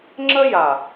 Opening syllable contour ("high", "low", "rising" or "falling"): high